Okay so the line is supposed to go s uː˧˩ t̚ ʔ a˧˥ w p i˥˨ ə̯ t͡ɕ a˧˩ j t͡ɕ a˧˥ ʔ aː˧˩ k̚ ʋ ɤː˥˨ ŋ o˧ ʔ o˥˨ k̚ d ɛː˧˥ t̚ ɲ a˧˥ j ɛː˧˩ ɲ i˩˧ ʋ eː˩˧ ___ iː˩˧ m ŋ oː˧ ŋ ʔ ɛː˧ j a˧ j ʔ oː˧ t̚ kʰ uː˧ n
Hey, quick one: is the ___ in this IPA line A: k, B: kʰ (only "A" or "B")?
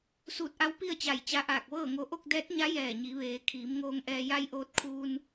B